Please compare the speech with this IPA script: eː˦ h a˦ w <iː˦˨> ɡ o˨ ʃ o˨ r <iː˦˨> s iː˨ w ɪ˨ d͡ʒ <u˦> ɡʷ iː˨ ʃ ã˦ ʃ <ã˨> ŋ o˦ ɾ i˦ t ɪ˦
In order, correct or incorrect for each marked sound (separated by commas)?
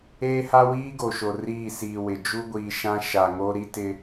incorrect, correct, correct, incorrect